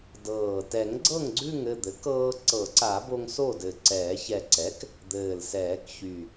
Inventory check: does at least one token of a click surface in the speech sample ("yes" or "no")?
yes